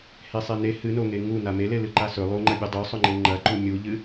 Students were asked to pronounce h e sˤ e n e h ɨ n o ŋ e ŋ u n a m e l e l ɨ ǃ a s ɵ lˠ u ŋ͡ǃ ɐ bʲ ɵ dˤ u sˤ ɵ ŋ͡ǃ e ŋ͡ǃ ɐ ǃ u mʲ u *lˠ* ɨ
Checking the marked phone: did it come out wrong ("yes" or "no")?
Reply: yes